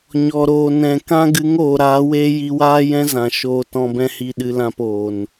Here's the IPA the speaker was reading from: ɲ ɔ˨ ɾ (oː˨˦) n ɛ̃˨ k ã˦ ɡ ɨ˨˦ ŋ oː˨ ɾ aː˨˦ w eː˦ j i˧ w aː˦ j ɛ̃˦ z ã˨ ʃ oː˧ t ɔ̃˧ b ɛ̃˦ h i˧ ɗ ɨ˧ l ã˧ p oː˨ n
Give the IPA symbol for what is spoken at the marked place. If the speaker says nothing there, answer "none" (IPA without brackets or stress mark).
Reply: oː˨